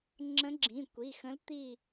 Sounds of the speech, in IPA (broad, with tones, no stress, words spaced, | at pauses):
ŋ͡ǁə̃˧˥ɡ͡ǁĩ˩˧˩kʷi˩˧˩ xə̃˧˥lt̪i˦˨